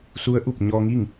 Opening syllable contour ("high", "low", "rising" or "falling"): rising